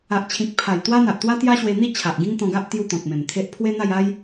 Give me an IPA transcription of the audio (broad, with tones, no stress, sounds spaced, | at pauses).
a˨ ʔ t͡ɕʰ ĩ˨ k̚ pʰ a˨˩ j t̪ w a˦ n̪ a˨ ʔ t̪ w a˦ t̪ j a˦ ɕ w e˧ n̪ i˥˧ t͡ɕʰ a˨ ʔ ɡ ĩ˦ ŋ t̪ ɔ̃˧ ɡ a˦ ʔ t̪ j u˦ t̪ ɔ̃˨ k̚ m ẽ˨˩ m t̪ʰ e˦ ʔ pʰ w e˦ n̪ a˥˧ j a˦ j